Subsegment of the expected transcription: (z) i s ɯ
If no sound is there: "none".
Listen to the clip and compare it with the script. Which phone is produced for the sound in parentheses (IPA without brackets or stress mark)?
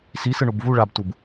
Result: s